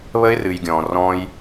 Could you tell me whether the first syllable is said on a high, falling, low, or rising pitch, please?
high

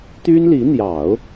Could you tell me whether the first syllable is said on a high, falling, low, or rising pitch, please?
high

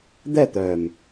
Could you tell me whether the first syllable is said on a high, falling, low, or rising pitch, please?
falling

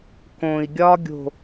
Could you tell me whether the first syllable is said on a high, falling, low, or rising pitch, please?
low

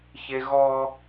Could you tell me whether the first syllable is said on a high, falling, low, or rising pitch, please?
high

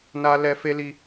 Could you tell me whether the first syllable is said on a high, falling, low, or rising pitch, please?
high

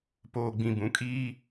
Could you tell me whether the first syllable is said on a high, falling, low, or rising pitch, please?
low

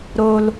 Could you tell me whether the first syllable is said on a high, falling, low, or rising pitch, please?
high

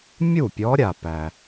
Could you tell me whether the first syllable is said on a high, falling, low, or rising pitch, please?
falling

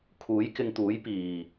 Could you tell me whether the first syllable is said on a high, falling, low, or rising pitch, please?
rising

